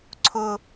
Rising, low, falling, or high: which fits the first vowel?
high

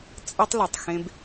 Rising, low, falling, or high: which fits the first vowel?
high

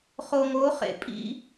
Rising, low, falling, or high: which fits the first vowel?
low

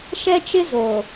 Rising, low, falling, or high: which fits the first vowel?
high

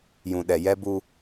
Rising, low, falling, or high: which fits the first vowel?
low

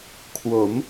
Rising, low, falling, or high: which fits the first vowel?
rising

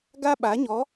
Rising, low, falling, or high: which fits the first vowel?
high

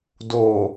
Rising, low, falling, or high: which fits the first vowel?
low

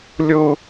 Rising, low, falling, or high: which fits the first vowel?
high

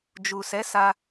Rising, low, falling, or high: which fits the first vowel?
low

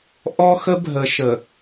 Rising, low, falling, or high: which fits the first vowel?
high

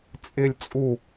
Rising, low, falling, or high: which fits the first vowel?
high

